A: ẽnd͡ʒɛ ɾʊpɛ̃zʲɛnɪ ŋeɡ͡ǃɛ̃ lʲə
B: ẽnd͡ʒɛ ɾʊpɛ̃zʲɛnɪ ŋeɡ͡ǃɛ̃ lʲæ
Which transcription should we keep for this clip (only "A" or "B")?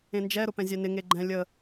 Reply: A